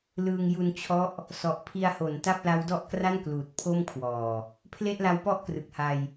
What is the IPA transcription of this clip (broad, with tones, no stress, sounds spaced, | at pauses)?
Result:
l ɯː˧ ŋ j u˧ n t͡ɕʰ ɔ˦˥ ʔ | s ɔ˨˩ ʔ pʰ i˧ a̯ h o˩˦ n t a˥˩ p̚ l a˦˥ w d ɔ˥˩ ʔ k r a˥˩ n k l uː˨˩ t̚ pʰ o˥˩ m kʰ w ɔː˨˩ | pʰ l e˥˩ ʔ l a˦˥ w p ɔ˥˩ ʔ k r ɯ˨˩ k̚ h a˧ j